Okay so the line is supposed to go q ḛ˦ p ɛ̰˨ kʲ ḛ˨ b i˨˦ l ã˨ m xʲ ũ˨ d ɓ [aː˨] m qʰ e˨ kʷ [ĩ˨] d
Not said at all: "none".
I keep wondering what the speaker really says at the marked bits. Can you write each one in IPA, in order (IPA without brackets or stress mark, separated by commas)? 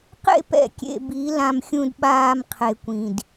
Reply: aː˨, ĩ˨